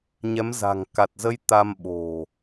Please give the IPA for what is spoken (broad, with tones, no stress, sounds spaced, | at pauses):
ɲ ɛ˨˦ m z a̤˨˩ ŋ k a˨˩ t̚ z ə˧ j t̪ a˧ m ɓ o̤˨˩